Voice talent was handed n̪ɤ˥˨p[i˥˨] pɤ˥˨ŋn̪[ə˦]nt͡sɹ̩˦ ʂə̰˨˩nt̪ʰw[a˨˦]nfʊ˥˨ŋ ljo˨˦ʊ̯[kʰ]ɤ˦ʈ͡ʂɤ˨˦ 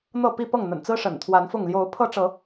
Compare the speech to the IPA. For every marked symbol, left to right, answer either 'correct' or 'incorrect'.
correct, incorrect, correct, incorrect

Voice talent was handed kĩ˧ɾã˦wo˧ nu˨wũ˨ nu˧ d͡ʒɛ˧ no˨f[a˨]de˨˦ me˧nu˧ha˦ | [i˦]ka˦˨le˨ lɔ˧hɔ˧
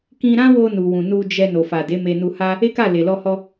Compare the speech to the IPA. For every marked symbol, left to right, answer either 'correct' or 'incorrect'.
correct, incorrect

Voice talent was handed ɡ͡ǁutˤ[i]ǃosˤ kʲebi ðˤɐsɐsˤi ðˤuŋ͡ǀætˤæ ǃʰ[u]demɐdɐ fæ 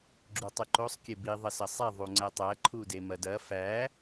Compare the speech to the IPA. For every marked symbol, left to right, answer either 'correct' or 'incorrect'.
incorrect, correct

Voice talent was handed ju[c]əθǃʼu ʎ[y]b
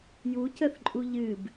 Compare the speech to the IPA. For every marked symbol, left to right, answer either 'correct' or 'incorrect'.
correct, incorrect

